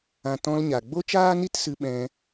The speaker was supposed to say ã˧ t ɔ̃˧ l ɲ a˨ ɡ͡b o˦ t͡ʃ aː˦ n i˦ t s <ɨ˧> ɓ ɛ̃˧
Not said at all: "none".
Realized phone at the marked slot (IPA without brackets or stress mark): ɨ˧